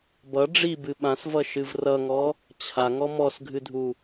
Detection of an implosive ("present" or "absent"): present